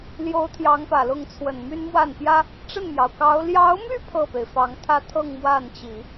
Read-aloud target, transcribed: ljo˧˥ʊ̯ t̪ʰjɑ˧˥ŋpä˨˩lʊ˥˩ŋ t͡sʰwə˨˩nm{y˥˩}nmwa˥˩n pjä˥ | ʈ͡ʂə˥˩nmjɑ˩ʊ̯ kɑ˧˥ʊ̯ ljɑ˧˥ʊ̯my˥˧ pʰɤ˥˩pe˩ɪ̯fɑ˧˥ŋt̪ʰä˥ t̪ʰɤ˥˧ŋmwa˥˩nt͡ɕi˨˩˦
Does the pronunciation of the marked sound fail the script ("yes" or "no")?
yes